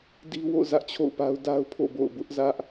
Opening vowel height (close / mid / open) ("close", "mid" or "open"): close